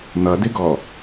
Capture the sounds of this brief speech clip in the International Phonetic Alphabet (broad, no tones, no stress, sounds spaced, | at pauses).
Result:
n̪ ʌ d ɪ ɡ ɔ